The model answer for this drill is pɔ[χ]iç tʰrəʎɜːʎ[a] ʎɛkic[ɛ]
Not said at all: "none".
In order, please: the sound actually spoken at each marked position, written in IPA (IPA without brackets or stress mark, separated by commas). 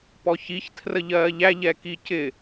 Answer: ç, æ, ɪ